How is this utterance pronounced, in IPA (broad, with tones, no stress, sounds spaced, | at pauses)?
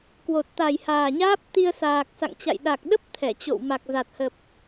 k w o˨˩ t̚ t̪ a˨˩ j h aː˨˩ ɲ aː˦˥ p̚ t̪ i˧ ə̯ s aː˨˩ k̚ s a̰˧˨ ŋ t͡ɕ a̰˧˨ j ɗ a˨˩ k̚ ɗ ə˦˥ p̚ t̪ʰ ɛ˧˩ t͡ɕ o̰˧˨ w m a˨˩ k̚ z a˨˩ t̚ h ə˨˩ p̚